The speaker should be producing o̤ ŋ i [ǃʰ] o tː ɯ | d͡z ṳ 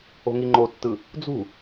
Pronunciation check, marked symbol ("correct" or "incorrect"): incorrect